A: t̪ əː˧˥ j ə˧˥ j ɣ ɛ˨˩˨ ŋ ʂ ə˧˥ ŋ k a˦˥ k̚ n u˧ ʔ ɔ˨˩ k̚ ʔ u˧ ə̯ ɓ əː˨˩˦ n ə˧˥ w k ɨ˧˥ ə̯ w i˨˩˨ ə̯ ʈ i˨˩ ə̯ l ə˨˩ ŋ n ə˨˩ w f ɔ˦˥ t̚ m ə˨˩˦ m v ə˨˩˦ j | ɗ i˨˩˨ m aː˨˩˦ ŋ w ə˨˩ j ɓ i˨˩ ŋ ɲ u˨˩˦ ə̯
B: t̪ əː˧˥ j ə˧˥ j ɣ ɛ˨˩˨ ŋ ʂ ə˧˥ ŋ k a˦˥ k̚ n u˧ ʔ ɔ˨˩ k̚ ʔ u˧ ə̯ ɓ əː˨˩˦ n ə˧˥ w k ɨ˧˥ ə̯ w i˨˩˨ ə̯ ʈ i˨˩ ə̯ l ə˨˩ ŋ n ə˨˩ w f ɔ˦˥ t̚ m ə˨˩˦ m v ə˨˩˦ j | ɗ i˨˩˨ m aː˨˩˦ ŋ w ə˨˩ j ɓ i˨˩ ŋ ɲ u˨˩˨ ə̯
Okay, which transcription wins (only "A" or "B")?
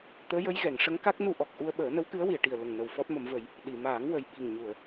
B